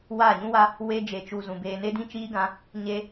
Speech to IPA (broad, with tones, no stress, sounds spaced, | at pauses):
w a˦˨ ɲ ũ˦ w a˦ | w e˧ d͡ʒ e˨ t͡ʃ u˨ z ũ˨ b eː˧ n e˦ d ĩ˦ t͡ʃ iː˦ ɡ ã˧ | ɲ e˦